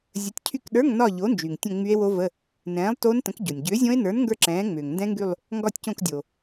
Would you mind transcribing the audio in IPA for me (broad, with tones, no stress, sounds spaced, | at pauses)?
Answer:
zʲ ə˨˥ tʲ cʰ y˦˨ k ɗ ə˞˧˥˧ ŋ n ɒ˦˨ ʎ o˨˥ n d͡ʒ y˩ ŋ tʲ ə̃˦˨ ŋ͡m y˦˥ e̯ w o˦˥ v ə˧˥˧ | n ɛ̃ː˨˥ lˠ t o˦˥ n t ə̃˨˥ k ɟ o˩ nʲ ɟ ʏː˨˥ zʲ õ˦˥ e̯ n ə˞˨˥ n ŋ ɡ ə˞˦˨ ǁ ɛ̃ː˨˥ ŋ͡m ʏː˩ ŋ n d ɛ̃˦˥ ŋ ɡ y˦˨ lˠ | ŋ ɡ ɒ˦˨ tʲ c õ˦˨ k dʲ o˩